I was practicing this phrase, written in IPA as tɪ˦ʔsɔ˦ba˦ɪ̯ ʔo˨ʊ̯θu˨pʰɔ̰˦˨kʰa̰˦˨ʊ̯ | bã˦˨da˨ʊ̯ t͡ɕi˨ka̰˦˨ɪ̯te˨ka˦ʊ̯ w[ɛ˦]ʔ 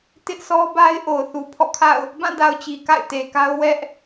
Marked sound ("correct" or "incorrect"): correct